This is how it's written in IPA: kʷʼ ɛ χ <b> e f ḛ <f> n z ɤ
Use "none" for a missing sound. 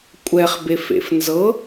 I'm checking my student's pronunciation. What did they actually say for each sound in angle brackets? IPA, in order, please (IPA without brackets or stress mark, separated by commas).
b, f